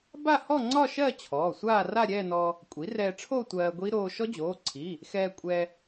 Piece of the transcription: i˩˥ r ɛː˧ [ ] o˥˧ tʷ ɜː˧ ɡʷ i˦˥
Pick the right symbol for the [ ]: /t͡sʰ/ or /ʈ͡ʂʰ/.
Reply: ʈ͡ʂʰ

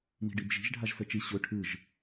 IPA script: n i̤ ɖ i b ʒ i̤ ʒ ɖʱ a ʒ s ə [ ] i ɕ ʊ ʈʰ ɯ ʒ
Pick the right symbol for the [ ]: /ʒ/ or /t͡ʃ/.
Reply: t͡ʃ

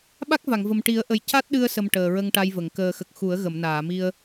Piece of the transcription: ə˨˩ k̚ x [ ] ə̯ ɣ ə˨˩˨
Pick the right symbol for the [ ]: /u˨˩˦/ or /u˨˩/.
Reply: u˨˩˦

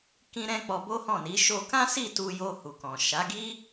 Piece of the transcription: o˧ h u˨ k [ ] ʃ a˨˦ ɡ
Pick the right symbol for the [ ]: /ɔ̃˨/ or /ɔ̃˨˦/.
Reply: ɔ̃˨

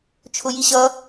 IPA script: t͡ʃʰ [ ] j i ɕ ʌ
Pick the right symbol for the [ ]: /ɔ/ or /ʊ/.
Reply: ʊ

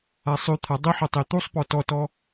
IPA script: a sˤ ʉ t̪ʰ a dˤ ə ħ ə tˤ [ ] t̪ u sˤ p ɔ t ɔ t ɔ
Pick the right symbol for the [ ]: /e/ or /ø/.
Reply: e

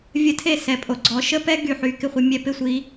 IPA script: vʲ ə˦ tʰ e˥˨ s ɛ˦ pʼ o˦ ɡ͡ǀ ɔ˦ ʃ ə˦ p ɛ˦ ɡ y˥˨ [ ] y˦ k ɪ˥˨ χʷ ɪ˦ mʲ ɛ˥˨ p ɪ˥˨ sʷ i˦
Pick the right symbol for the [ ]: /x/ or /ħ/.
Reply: ħ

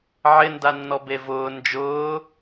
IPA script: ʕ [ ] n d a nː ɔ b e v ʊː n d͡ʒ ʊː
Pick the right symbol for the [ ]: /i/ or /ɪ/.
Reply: ɪ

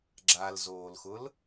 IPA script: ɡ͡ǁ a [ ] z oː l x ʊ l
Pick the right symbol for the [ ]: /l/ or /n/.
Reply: l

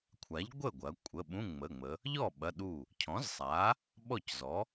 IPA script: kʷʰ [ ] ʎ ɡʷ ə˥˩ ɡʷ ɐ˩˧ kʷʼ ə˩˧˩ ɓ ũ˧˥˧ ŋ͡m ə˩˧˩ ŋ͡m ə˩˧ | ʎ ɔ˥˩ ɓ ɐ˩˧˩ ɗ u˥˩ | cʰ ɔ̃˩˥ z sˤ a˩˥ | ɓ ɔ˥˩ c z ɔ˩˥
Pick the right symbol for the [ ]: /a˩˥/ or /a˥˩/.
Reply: a˩˥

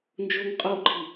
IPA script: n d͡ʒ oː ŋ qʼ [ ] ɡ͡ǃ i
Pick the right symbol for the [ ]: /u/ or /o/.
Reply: o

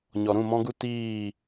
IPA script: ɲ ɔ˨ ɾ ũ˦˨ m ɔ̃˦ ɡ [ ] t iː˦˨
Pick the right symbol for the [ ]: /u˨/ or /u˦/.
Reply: u˦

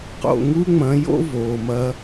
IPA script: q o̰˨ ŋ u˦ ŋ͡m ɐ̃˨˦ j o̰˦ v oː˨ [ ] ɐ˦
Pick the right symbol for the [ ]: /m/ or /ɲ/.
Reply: m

